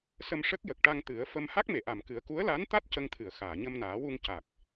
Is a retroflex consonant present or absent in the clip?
present